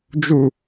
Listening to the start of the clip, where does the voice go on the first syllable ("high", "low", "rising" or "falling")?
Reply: low